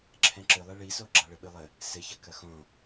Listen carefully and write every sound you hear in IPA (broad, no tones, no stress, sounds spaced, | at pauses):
ǁʰ ɛ̃ ǁ ɨ lˠ e ɭ i s o ɡ͡ǁ a ɭ ɘ ɓ ɨ lˠ ɘ | s ɘ ç ɐ k ɐ x õ